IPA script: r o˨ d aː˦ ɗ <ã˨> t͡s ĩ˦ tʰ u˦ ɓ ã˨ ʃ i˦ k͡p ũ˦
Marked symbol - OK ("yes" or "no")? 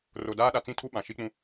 no